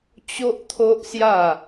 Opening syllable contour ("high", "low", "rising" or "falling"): high